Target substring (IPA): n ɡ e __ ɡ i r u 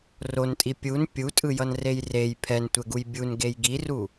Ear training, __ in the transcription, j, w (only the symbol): j